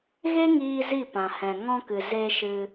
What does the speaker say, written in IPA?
ɣ e˦ ŋ iː˧ z i˦˨ p ã˨ h ɛ̃˨ ŋ ɔ̃˧ k ɨ˨ z e˧ ʃ ɨ˧

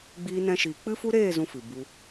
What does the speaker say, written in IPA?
ɡ͡b iː˧ n ɛ̃˧ ʃ iː˨ k͡p ɨ˦ f u˦ ɾ eː˦˨ z ũ˦ f ɨ˨ b u˧

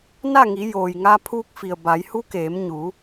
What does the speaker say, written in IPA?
n a˥˨ ŋ i˩˧ j oː˩ j ŋ a˧ pʰ uː˧ k̚ f i˩ ə̯ b a˩˧ j h u˧˥ k eː˩˧ m ɲ u˩˧

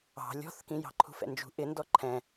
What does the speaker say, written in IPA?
ɑ̤ lʲ ɔ̤ θ k ĩ j ɑ̤ ǃʰ ṳ f ɛ̰ n d͡ʒ ṳ ʔ ɪ n d ɔ ǃʰ ɛ̃

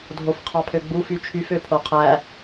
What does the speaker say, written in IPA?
dʱ o f qʰ ɑ pʰ ø ɡ͡b u f y t͡ʃʰ y f ø pʰ o qʰ æ

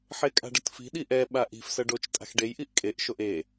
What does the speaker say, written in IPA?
ħ e kʼ a̤ ɖ ʌ t f i̤ ɗ i ʔ ɛ ɓ a ʔ i̤ f s ʌ ɖ o t͡ʃ tʼ a̤ x ɖ e j ʔ i ʔ kʼ e ʔ ʃ o ʔ e

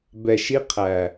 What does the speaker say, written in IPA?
b ɛ˨ ʃ i˦ qʰ æ˨

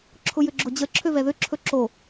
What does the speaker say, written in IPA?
ǁʰ ʊ j ʏ ɡ͡ǁ ʊ d͡ʑ ə ǁʰ ø v ɛ ð ʏ ǁʰ ɵ ǁ o

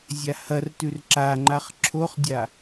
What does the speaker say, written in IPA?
zʲ a h ɐ r t ʉ r ǁ a ŋ͡ǃ a χ ǁʰ o χ dʲ a

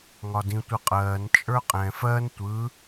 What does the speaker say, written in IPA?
ŋ ɒ d ĩ tʷ ɯ qʼ ɜː n t͡ʃʼ ə˞ qʼ ɛ̃ f ɜ n tʷ ɯ

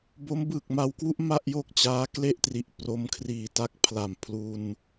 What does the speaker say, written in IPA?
b o˦˥ m b ɯː˨˩ k̚ m a˧ w k w u˥˩ ʔ m a˥˩ ʔ j o˥˩ k̚ t͡ɕ aː˦˥ k l e˥˩ ʔ t r i˨˩ ʔ p r o˦˥ m kʰ r iː˨˩ t a˦˥ k̚ pʰ l a˨˩ m pʰ l u˧ n

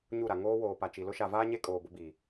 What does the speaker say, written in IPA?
ɲ u˦˨ ɾ a˨ ŋ oː˦ w oː˨ p a˨ t͡ʃ i˨ l ʊ˦ ʃ a˨ v aː˦ ɲ e˦ kʼ oː˨ b ʊ˦ b i˨

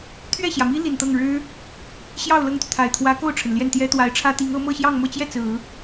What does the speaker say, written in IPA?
t̪ʰ ɥ ɛ˥˩ ɕ j ä˩ m i˥ l i˨˩ n t̪ ɤ˥˩ ŋ ɻ ɻ̩˥ | ɕ j ɑ˥˧ ʊ̯ l ɤ˥˩ ŋ t̪ y˩ t̪ʰ a˨˩ ɪ̯ t̪ʰ w ä˧˥ k o˥˩ ʊ̯ ʈ͡ʂʰ ə˩ n l j ɛ˥˩ n t̪ j ɛ˥ t̪ w a˧˥ ɪ̯ ʈ͡ʂʰ ä˥ t̪ i˧˥ ŋ ɤ˧˥ m ɤ˥˧ ɕ j ɑ˥˧ ŋ m ɤ˥˧ t͡ɕ j ɛ˥˩ t͡s ɹ̩˨˩˦

